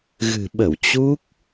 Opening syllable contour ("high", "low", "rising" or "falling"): low